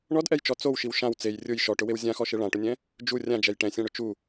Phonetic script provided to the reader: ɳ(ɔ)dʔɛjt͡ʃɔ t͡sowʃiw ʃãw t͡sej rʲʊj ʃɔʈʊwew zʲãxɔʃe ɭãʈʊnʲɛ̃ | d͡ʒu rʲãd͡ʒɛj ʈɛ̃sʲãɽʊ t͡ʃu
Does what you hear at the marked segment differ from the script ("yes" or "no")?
no